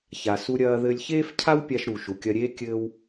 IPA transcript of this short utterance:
ç a˩ s u˧ ɾʲ ɐː˧ ð ɘ˧ lʲ ç eː˥ f cʰ a˥ w pʲ a˧ ʃ ɾ u˩ ʃ u˩ kʲ ɐ˧ ɾʲ eː˥ kʲ ɘː˥ w

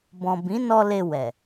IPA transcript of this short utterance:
b ɔ̃˨ b ĩ˨˦ n ɔ˧ l e˧ w ɛ˨

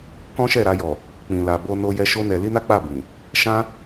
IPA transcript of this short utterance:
k ɔ̃˦ ʃ ɛ˦˨ ɾ a˧ j ɔ˨ | k͡p ĩ˨ l a˨ b o˧ n o˦ j ɛ˦ ʃ o˦ n ɛ˧ l i˦ n a˦ k͡p a˦˨ b ĩ˨ | ʃ ã˦

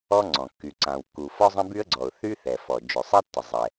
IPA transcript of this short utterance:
ɔ˥ ŋ͡ǀ ɔ̃˩ kː y˩ ǀ ã˩ w kː u˩ f ɔ˥ zˤ ə̃˥ b y˥ ə̯ ɡ͡ǀ ɔ˩ ʊ̯ θ y˥ θ ɛ˩ f ɔ˩ d͡ʒ ø˩ sˤ ɛ˥ tː ə˩ zˤ ɛ˩

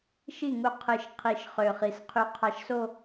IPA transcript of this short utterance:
ʃ i˥˩ ŋ u˧ qʰ ɯ˨˩˦ ʃ qʰ i˨˩˦ ʃ χ ø˨˩ χ i˨˩ s qʰ y˧ qʰ ɑ˧ ʃ s o˥˧

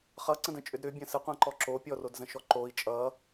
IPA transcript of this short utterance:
χ ʌ ǀ ə̃ d ə̃ t͡ʃʼ ʏ d ɾ ʏ bʲ ə̃ s ɘ qʷ ã ǃ ɔ ǁ o pʲ ɔ r o d z ə̃ ʃ ɔ ǃ o i̯ t͡ʃʼ ʌ

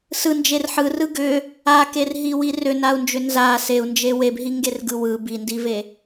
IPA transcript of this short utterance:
s ɯ n d͡ʒ e r ħ ɯ r ɯ ɡ ʏ | a k e r ɦ i w i r ʏ n a u̯ n d͡ʒ ʏ n z a s e u̯ n d͡ʒ e w e b ɦ i ŋ ɡ e r ɡ ɯ w ɯ b i n d i v e

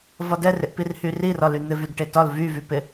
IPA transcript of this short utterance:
v ɒ d ɛ r ɪ ʔ p i r h y r i r ɒ l y n̪ ɪ v y d ʈ e t ɒ l v y v y p ɪ

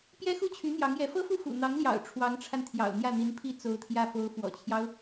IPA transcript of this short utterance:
p j ɛ˥ x u˥˩ t͡ɕʰ y˧˥ n̪ j ɑ˧˥ ŋ j ɛ˧˥ f ɤ˥ f u˥˩ f ṵ˨˩ n̪ ɑ˧˥ ŋ l j ɑ̰˨˩ ʊ̯ ʈ͡ʂʰ w ɑ˧˥ ŋ ʈ͡ʂʰ a˧ n t̪ʰ j ɑ̰˨˩ ʊ̯ n̪ j ä˥˩ n̪ i˧˥ n pʰ i˥ t͡s o˧˥ ʊ̯ t̪ʰ j ä˥˩ f o˧˥ ʊ̯ f w ɔ̰˨˩ t͡ɕʰ j ɑ˦ ʊ̯

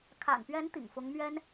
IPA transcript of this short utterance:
kʰ a̰˨˩ n p ɥ ɛ˧˥ n t̪ ḭ˨˩ ŋ f ʊ˧˥ ŋ m ɥ ɛ˥ n

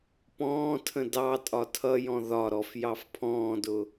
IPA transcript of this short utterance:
p ɔ̃ː tʰ ə̃ d ɑ tʼ ɒ tʰ ʌ j ɔ̃ ð ɒ ɾ ɔ f j ɑ f pʰ ɔ̃ː d ʊ

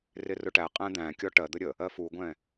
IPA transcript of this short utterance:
r ɪ r ʊ ʈ æ qʼ æ̃ d̪ æ̃ kʲ ɔ ʈ ɜ d̪ ə ɾʲ ə | ɜ f u ɡʷ ɛ̃

